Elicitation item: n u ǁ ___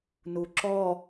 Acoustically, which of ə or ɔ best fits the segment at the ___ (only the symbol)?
ɔ